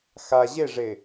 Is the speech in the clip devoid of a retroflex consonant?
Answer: no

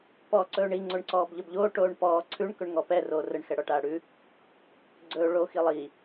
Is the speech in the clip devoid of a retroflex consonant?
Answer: no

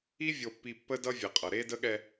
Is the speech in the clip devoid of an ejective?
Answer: no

